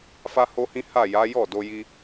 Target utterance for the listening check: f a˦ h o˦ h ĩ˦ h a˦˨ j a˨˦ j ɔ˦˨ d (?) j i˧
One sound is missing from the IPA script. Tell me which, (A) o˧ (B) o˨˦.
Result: A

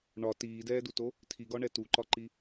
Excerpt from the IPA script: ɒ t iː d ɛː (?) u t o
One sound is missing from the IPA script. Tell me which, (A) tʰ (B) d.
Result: B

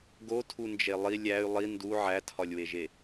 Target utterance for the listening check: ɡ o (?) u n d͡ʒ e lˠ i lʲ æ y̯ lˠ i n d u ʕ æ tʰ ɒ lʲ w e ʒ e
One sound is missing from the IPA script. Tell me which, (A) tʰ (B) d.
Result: A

